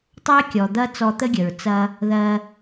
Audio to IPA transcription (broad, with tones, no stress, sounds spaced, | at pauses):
tˤ ɛ˥ e̯ kʲ ɔ˩ d̪ ɐ˥ t͡s ɔ˧ t̪ ə˥ ɡʲ ə˩ ɹ t͡s ɐ˧ | ð ɜ˧